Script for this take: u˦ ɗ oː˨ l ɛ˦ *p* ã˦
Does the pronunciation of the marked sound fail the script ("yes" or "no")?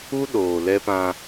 no